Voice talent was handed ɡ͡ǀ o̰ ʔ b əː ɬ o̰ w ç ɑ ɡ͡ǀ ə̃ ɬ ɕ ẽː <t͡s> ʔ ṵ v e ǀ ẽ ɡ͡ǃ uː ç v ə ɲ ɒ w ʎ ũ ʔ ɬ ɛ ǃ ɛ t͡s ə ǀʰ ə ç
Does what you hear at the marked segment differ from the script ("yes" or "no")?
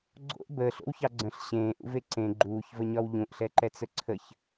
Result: yes